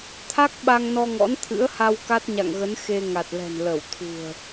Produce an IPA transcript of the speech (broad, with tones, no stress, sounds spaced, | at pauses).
t̪ʰ a˦˥ k̚ ɓ a˧ ŋ n ɔ˧ ŋ ɔ̰˧˥ n t̪ʰ ɨ̰˧˥ ə̯ h a˧ w k a˦˥ t̚ ɲ a̰˧˨ ŋ ɣ ə˨˦ n x e˧ ŋ a˨˩ t̚ l ɛ̤˨˩ n l ə˧˩ w t̪ʰ ṳ˨˩ ə̯